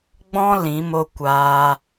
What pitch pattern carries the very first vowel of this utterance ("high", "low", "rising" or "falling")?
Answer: high